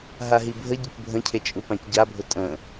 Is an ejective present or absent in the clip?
present